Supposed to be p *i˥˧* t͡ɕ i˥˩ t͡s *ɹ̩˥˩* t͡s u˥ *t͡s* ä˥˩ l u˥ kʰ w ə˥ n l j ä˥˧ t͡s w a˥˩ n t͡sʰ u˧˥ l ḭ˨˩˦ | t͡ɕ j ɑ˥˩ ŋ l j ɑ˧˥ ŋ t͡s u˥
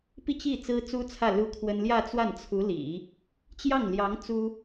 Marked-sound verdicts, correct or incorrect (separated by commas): correct, incorrect, incorrect